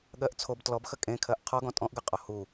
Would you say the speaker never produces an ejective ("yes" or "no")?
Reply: no